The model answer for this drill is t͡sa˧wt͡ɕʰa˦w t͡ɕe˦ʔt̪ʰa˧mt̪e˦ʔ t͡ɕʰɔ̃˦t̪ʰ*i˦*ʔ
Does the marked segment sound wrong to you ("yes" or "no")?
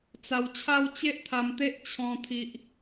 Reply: no